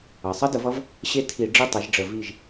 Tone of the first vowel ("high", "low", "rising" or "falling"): low